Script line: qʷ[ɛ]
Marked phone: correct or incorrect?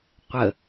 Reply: incorrect